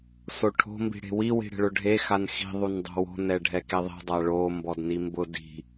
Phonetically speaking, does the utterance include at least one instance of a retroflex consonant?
yes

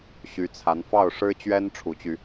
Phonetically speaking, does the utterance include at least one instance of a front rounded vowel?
yes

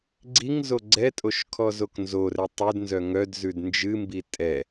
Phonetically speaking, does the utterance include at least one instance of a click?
yes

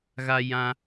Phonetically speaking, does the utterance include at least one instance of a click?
no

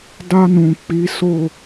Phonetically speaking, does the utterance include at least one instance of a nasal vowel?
yes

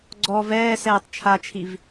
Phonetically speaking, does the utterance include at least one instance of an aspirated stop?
yes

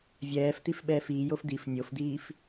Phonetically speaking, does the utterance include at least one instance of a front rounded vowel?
no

